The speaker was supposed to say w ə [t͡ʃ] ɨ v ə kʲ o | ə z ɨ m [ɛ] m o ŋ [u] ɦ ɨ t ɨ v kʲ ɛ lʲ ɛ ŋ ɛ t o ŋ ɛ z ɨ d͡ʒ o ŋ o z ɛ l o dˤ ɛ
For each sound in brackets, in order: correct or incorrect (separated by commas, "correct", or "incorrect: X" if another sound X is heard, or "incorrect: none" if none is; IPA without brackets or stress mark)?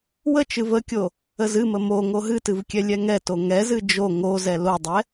correct, incorrect: ə, incorrect: o